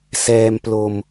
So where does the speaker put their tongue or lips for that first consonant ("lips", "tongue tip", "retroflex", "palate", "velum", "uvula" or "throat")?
tongue tip